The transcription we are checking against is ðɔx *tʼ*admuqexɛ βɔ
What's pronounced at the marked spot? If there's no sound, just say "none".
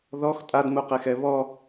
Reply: tʼ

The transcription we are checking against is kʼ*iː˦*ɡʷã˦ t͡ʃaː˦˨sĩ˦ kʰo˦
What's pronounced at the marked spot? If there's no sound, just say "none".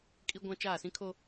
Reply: i˦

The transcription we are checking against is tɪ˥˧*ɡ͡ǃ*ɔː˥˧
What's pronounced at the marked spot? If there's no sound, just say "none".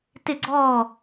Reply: ɡ͡ǀ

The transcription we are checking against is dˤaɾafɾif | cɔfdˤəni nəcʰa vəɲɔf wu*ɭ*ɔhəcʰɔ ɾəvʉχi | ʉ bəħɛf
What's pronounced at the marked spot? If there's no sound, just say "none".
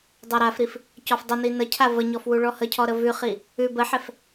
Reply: ɭ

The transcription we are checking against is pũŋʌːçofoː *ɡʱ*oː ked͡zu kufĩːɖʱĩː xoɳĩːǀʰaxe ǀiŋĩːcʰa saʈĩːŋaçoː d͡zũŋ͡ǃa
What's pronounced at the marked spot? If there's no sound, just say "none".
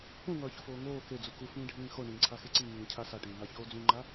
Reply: ŋ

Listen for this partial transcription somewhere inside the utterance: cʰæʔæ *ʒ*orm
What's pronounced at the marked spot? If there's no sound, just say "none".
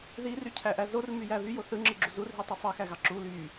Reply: z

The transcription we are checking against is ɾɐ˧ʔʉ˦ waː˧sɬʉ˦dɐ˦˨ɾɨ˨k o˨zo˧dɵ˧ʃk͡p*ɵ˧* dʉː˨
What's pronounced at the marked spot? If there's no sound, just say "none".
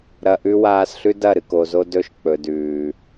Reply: ɵ˨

